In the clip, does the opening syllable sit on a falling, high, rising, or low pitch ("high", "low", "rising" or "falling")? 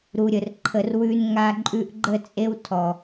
low